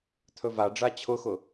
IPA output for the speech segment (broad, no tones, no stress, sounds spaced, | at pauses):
t̪ʰ ɵ v a ɖ͡ʐ a t͡ɕʰ ʊ x ʊ